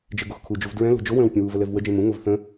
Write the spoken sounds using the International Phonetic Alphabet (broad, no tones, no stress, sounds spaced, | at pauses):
d͡ʒ e ɡ o x kʰ u d͡ʒ u v d ɹ ɛ̃ l o̤ d͡ʒ o w ə̃ː w pʲ ə̃ w u v ə l ɛ v w ə d͡ʒ ẽ m ũ ŋ o v θ ə̃